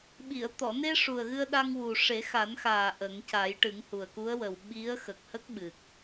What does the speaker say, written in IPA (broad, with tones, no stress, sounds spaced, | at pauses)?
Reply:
ɓ i˨˩˨ ə̯ t̪ ɔ˨˩˨ n e˧ ʂ u˨˩ ə̯ ɣ ɨ˧ ə̯ ɗ a˧ ŋ w u˨˩ ʂ e˨˩˦ x a˨˩˦ n x aː˨˩ ʔ ə˨˩˦ ŋ c a˨˩˦ j ʈ ɨ˨˩˦ ŋ h u˨˩ ə̯ k u˧˥ ə̯ w ə˨˩ w ɓ i˧˥ ə̯ x ə˨˩ k̚ h ə˦˥ k̚ ɓ ɨ˨˩ k̚